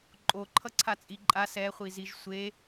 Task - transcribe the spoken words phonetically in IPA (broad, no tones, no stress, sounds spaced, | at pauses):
ǃʼ o ǃʰ ʌ ǀʰ a t͡sʼ i ǃʼ a s ɛ χʷ i z i ʒ sʷ e